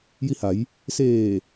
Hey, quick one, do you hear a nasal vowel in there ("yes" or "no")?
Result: no